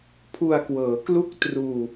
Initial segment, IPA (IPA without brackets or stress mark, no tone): pʰ